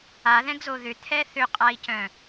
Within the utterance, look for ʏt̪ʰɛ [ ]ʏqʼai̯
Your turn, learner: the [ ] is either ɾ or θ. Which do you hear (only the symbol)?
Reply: θ